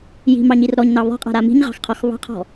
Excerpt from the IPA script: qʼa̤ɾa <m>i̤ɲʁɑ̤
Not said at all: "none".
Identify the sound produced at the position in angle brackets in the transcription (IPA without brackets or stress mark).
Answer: m